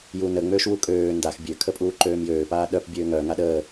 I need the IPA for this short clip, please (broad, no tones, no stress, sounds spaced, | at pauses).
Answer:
j u n ə ŋ͡m øː ʃ w u kʼ øː n d a x bʲ ø kʰ ə pʼ uː ǃ øː m j øː p aː ɗ œ p bʲ øː ŋ œː ŋ a ɗ əː